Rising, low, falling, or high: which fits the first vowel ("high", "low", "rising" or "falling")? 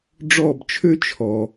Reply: falling